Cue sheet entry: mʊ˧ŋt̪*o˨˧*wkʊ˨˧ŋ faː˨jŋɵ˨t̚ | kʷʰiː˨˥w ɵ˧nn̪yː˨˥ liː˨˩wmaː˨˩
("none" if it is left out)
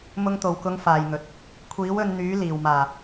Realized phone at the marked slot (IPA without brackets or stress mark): o˨˩